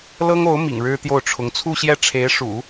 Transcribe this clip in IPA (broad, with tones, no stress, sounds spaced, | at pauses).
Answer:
l ɤ˥ ŋ o˧˥ ʊ̯ m ḭ˨˩ ŋ ɻ ɻ̩˥ t̪ j o˥˩ ʊ̯ ʈ͡ʂʰ ʊ˧˥ ŋ t͡sʰ u˥˧ ɕ j ɛ˥˩ ʈ͡ʂʰ e˧˥ ɪ̯ ʂ ṵ˨˩˦